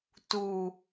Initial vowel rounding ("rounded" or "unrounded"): rounded